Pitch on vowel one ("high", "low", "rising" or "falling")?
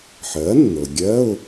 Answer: rising